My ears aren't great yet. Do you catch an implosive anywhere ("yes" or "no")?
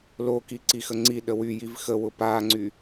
yes